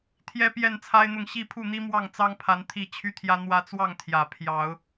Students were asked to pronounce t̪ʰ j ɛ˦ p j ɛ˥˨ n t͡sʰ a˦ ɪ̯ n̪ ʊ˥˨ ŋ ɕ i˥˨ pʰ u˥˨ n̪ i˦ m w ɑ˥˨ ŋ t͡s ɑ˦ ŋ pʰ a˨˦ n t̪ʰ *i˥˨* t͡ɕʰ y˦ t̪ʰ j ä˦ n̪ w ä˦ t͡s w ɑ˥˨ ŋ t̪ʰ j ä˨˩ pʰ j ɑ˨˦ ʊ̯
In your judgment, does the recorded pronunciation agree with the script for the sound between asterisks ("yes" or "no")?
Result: yes